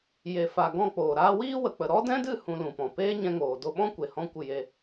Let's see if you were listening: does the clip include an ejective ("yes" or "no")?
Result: no